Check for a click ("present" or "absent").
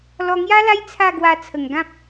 absent